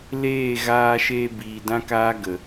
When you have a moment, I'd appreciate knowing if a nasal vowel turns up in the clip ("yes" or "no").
yes